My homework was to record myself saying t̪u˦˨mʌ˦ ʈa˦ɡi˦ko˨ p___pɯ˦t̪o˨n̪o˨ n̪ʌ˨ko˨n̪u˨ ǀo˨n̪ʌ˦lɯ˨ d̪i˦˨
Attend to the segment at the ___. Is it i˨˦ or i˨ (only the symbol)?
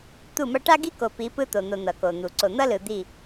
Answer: i˨˦